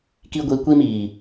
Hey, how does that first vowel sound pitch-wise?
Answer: high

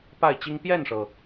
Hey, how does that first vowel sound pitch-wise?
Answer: falling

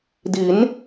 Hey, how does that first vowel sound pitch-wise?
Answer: rising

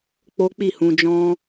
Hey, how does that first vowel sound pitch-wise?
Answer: high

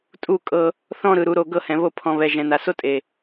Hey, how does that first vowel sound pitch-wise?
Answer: falling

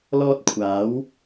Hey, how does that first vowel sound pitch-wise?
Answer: high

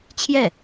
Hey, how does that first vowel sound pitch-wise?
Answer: falling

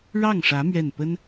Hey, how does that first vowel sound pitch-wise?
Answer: falling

